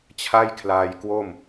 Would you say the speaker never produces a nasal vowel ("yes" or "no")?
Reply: yes